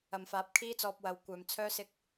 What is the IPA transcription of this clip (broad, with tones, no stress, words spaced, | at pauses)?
ɐ˨mfaː˨˥p̚kʰiː˥t͡sɔː˧p̚ wɐ˨wkʷœː˨m t͡sʰœː˥sɪ˥k̚